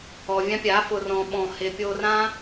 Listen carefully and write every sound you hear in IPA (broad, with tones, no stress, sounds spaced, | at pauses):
ɔ˨ vʲ ã˧ pʲ a˨˦ f ʊ˨ r ɔ̃˨ ɓ ɔ̃˨ h ɪ˨ pʲ o˧ r ã˦